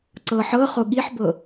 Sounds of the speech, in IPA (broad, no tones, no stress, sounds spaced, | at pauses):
ǀ ɤ ħ ɤ χ o ɠ i ħ b ɤ